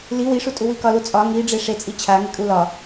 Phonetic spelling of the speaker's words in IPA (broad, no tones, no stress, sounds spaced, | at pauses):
l i w i ʂ u tʼ u w i k ɒ l u t͡sʼ ɒ ŋ i ɖ͡ʐ e ʂ e t͡sʼ i t͡ɕʰ a ŋ e kʼ u l ɒ